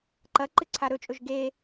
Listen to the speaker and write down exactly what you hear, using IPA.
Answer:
ǃ ɐ ǃ ɨ ǀʰ a ɾ ɵ t͡ʃʼ ɵ ʒ ɡ e

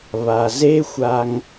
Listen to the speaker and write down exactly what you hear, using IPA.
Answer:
β a˨ z e˦ xʷ a˧ ŋ

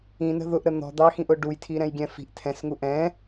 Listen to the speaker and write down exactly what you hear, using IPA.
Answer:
ĩ n ə̤ ð ʊ ʔ ɾ ə n̪ ɔ̤ d̪ ɑ x ĩ ʔ ʊ ɖ u j tʰ i ɾ ɛ̃ j ɡʲ ɛ̃ f i̤ ʔ tʰ ɛ̃ s ŋ u ʔ ɛ̃

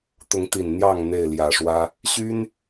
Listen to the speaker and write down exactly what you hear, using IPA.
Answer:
t̪ ʊ˨˦ ŋ t̪ i˨˩ n n̪ j ɑ˥˨ ŋ n̪ e˥˨ ɪ̯ l j ä˨˩ ʂ w ä˦ | ɕ y˦ n

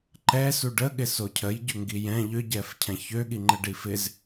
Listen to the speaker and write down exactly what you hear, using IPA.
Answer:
ǃ ɛ s u ɖ ə ɠ ɪ s o cʰ ə j ɟ ʏ ŋ ɡ i j ɛ̃ ʎ ʏ ɟ ɛ f cʰ ɛ̃ ç ø ɠ i ŋ͡ǃ ə ɖ i f ɪ z

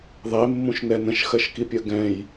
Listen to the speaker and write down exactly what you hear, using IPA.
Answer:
ðˤ e mː ũ ʃ n ɛ n ə̃ ʃ x ɜ ʃ k i pʲ ɜ ɡ ɛ̃ j

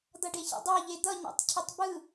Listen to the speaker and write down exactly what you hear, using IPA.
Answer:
d̪ ʌ ɖ e ç ə̰ dˤ a ʎ e d̪ ʌ ɲ ḛ tˤ cʰ ɪ tˤ b ɯ

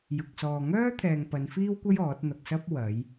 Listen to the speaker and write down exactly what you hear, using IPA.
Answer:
j ʊ˧ k̚ s ɔː˧ ŋ œː˥ t̪ʰ ɛː˨ ŋ p ɐ˨˧ n f iː˥ w kʷ ɐ˥ j ɔː˨˥ t̚ n̪ ɐ˧ k̚ s ɐ˥ p̚ w ɐ˨˧ j

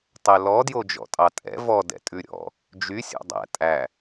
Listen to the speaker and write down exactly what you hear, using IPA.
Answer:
tˤ ɛ l ɔ d j o d͡ʒ ɔ̰ tʼ ɑ tʼ ɛ̰ v ɔ d ɛ̰ tʼ ʉ ɾʲ ɔ̰ | d͡ʒ y sʲ ɔ̰ dˤ æ̰ tʼ æ

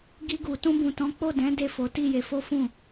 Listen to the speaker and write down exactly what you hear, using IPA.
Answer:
ɡ i˧ ɡ u˨ t ũ˧ b ũ˨ t ɔ̃˨˦ k͡p o˦˨ d ɛ̃˨˦ d e˦˨ f o˨˦ t i˦˨ j e˨˦ f o˦ f ũ˦˨

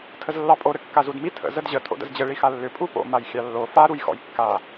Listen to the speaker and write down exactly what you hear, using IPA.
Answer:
tʰ ə z lː ɑ pʼ o ɾ ɘ kː a z u d m i tʰ ə̰ z ə d ʑ ə tʰ o̰ d ə̰ z d͡ʑ ɘ ɭ i x a lː ʏ pʼ u p o̰ m a j xʲ ɑ lː o f a ɾ u j x ɔ̰ j kː a

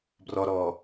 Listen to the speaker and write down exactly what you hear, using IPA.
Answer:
b r ɔ ɾ ɔː

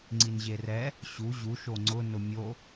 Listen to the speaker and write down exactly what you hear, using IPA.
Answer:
ŋ͡ǀ i n ʑ e r ɛ | ɕ u ʑ u ʃ o ŋ͡ǀ ʊ n ʊ mʲ o

